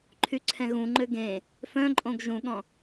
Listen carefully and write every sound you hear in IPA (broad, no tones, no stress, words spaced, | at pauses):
ǃʰyǀʰɛ̃ɣũŋ͡ǃø ɡẽ | fœ̃ǃʼõɡ ʒũɠɔ̃